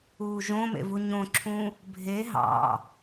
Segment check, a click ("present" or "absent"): present